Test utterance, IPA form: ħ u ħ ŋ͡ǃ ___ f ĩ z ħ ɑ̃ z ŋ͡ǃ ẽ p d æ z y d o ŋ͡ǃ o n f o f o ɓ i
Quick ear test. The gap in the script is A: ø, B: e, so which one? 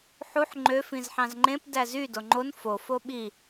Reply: A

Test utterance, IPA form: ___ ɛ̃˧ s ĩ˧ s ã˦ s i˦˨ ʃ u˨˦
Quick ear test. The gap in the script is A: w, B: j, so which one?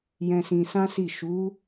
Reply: B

